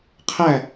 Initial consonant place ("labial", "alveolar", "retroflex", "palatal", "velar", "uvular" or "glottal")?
uvular